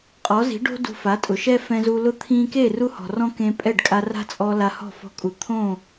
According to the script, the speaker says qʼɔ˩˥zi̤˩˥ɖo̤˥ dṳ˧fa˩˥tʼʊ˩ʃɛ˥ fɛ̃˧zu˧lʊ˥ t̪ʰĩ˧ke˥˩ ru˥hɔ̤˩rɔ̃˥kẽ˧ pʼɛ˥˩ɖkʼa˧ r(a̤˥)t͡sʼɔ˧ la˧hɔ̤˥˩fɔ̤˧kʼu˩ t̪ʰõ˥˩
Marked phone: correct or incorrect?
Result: correct